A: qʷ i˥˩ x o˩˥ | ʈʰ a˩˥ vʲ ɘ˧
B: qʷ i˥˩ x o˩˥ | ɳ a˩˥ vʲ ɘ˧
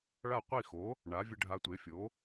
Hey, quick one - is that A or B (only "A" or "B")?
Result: B